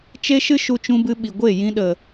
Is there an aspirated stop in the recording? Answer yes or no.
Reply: no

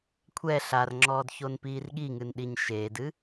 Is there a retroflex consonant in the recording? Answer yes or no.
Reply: no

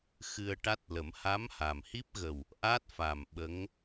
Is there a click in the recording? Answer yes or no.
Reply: no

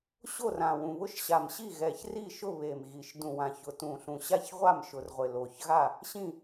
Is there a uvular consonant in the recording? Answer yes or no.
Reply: yes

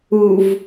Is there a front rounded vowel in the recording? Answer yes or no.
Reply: no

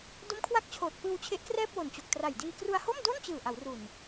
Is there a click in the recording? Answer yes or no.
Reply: no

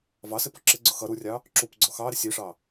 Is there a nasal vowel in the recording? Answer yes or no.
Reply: no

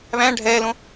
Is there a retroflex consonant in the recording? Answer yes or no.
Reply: yes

